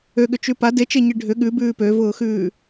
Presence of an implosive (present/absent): present